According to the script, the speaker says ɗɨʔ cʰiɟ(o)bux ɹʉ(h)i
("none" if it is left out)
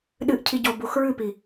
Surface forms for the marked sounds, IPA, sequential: o, p

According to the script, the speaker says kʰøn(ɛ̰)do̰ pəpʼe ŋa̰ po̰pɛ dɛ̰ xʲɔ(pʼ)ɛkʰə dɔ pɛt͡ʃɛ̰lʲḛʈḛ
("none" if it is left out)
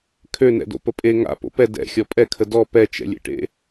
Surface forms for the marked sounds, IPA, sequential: ɛ̰, pʼ

